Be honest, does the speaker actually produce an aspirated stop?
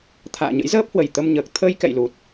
yes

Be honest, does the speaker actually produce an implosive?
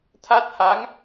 no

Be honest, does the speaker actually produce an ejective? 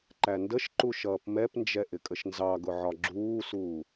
yes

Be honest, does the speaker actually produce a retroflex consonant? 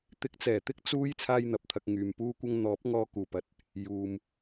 no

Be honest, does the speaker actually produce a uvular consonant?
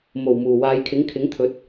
no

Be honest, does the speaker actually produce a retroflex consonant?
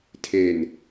no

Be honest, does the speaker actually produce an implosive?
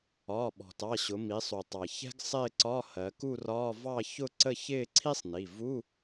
yes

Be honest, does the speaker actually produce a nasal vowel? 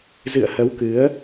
no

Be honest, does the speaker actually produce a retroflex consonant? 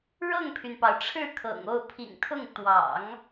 yes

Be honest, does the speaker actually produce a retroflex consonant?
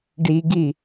yes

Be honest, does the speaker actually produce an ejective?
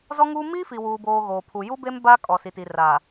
yes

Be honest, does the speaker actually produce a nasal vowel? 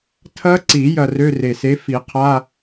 no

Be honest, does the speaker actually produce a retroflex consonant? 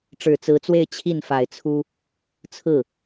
yes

